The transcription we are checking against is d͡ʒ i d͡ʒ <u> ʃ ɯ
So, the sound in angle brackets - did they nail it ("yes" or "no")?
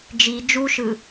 yes